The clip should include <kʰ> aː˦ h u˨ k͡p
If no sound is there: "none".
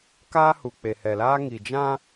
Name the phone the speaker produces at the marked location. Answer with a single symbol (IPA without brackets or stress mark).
k